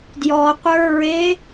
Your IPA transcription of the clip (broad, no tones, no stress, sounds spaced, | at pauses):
d j ɔ qʷ ə˞ ɹ e